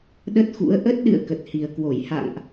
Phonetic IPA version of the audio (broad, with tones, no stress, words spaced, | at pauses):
ɗə˦˥t̚xṵ˧˥ə̯ ʔə˦˥t̚ɗɨ̰˧˨ə̯ kə˨˩t̚hi˨˩ə̯kwo˧˩j ha̰˧˨ŋʔ